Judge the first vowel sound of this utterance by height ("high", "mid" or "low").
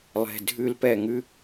mid